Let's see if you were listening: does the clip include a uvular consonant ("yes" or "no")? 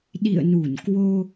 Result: no